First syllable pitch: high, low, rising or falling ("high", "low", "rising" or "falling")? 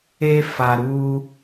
high